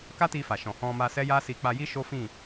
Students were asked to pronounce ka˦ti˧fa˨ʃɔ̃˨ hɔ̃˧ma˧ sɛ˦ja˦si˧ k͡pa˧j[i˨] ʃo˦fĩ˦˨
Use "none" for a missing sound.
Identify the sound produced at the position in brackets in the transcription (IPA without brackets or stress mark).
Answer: i˦